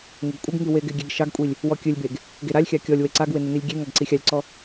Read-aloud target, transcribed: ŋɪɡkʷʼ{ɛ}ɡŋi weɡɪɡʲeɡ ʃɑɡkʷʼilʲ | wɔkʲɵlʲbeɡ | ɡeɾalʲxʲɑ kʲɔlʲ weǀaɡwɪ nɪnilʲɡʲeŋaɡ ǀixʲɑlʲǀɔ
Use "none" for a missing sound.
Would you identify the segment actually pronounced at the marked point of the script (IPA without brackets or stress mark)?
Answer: ɪ